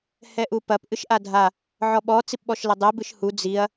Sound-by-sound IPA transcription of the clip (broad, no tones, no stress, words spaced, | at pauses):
hɛʔupɐp ʔɨʃʔadʱa | ʕɔɓɔ t͡sipɓɔʃlɐdˤɛ bɨʃhu d͡ziɐ̯